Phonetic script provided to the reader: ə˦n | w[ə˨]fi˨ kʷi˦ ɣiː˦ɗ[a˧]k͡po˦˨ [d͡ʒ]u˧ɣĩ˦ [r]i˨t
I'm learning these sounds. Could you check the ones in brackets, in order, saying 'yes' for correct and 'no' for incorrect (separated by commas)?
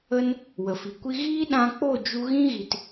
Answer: yes, no, yes, no